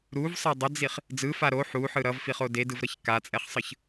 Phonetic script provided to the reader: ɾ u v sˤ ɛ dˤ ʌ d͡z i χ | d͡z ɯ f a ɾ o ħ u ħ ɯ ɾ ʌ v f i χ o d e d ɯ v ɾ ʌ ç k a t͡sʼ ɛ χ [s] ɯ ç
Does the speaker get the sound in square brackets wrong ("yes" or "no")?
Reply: yes